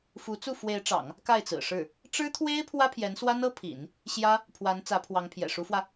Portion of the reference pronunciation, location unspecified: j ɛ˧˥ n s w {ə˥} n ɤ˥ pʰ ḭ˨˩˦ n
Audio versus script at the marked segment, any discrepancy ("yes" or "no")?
yes